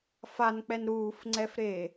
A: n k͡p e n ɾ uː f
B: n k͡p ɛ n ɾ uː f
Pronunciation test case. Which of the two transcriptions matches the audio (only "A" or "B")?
B